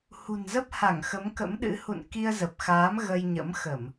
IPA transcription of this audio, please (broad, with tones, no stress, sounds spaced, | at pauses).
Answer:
h ṳ˨˩ n z ə˦˥ p̚ h a˧˩ ŋ x ə˨˦ m k ə̰˧˥ m ɗ ɨ̰˧˥ h ṵ˧˨ n k i˧ ə̯ z ə˨˩ p̚ x aː˨˦ m ɣ ə˧ j ɲ ə̰˧˥ m x ə˧˩˨ m